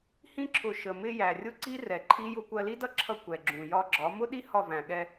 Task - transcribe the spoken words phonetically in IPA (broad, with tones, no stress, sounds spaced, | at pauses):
h ĩ˧ ǁʰ ʊ˨ ʃ ə˨ m ɪ˧ j æ˨ rʲ ʊ˦ ǀ i˦ r ɛ˨ ǃʰ i˦ j ʊ˧ kʷ ɜ˧ l i˦ d ʌ˦ ǁʰ ʌ˧ kʷ ɛ˨ ɡ͡ǁ ũ˨ j ɒ˧ ɡ͡ǁ ɒ˨˦ m ʊ˦ ɗ i˦ h ɒ˦˨ v æ̃˨ ɠ ɛ˧